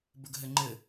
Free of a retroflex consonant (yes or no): yes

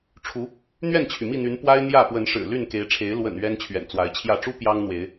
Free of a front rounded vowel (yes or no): no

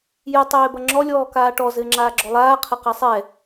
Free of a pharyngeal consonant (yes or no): yes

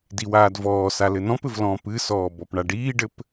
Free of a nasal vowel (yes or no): no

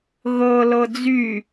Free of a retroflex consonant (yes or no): yes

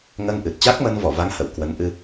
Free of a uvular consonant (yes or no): yes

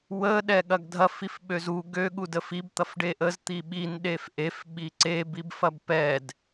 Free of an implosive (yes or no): no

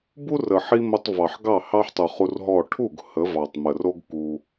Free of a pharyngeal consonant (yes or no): no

